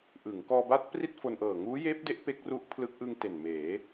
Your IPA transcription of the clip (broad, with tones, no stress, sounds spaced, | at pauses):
ʔ ɯ˩˦ ŋ k ɔː˧ b a˦˥ t̚ p r i˥˩ t̚ f o˧ n ʔ ɤː˨˩ ŋ uː˦˥ j eː˦˥ p̚ d e˦˥ ʔ p e˦˥ k̚ r u˦˥ ʔ pʰ l ɯ˦˥ k̚ ʔ ɯ˧ ŋ t e˨˩ n m eː˩˦